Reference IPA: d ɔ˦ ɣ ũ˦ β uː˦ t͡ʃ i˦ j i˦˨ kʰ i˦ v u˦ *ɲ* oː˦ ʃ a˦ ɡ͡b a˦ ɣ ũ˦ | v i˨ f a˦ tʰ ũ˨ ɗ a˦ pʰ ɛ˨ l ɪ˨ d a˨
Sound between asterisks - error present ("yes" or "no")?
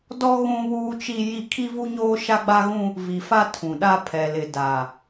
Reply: no